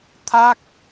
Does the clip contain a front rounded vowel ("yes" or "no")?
no